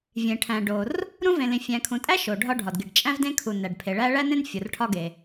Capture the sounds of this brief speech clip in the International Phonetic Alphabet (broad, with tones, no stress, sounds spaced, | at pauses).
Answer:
vʲ ẽ˩ ʈʰ æ̃˩ ɖ o˩ r | ɾ ũ˥ v ẽ˩ l ĩ˩ fʲ æ̃˩ kʰ ũ˩ tʼ æ˥ ʃ o˩ ɖʱ ɒ˥ ɖʱ ɒ˩ d ɡ i˩ ɖ t͡ʃʼ æ̃˥ v d ẽ˥ kʰ u˩ n æ˩ ɖ pʰ e˩ ɭ æ˥ ɭ æ˥ n ẽ˥ n fʲ o˩ r ʈʰ ɒ˥ ɡ e˩